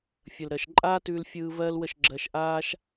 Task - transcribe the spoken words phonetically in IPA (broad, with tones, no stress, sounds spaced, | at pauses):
fʲ ə˨ l ɾ ɜ˨ ʃ ǃʼ aː˦ t ʉː˧ l fʲ ɯː˧ v ɜː˦ l w ə˦˨ ʃ ɡ͡ǁ ɜ˧ ʃ ʔ aː˦ ʃ